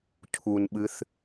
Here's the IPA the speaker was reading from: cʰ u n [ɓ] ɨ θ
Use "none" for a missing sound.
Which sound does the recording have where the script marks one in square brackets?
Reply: ɓ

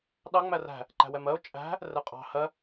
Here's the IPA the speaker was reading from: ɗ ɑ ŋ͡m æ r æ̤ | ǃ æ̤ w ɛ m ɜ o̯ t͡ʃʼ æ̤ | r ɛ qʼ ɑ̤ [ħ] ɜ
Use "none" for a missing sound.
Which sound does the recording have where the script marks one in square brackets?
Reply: h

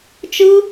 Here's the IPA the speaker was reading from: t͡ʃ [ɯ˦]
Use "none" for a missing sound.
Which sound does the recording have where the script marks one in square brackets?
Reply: ɯ˦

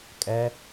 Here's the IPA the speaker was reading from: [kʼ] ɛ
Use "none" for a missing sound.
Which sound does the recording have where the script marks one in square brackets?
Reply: kʼ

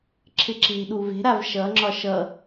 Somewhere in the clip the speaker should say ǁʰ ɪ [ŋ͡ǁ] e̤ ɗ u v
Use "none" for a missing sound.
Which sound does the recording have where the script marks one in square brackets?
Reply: ǁ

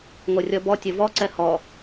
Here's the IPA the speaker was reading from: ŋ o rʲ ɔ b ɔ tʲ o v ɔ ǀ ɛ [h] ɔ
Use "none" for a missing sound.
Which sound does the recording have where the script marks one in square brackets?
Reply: h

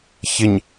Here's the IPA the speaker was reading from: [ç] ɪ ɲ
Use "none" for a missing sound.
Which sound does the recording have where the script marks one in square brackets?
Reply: ç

